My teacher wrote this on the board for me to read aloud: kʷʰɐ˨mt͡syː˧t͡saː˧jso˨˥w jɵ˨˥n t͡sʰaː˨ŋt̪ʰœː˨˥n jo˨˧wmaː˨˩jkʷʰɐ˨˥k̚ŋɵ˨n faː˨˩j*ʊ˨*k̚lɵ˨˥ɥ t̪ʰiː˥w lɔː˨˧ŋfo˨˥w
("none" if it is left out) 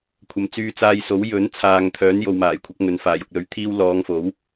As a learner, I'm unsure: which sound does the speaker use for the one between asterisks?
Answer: ʊ˨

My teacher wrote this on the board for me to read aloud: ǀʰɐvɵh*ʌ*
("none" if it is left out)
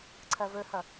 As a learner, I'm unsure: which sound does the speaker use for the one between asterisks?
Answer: ʌ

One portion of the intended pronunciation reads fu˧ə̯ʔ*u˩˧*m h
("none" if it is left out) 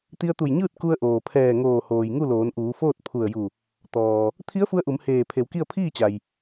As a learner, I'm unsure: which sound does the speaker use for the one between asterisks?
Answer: u˩˧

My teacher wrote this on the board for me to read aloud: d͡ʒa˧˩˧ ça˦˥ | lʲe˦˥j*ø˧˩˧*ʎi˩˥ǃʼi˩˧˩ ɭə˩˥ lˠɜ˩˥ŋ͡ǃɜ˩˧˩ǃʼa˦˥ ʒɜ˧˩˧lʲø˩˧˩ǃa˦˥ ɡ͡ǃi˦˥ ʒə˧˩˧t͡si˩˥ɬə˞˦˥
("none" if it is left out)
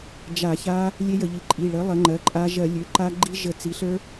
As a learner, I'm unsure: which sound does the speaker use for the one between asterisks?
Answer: ə˧˩˧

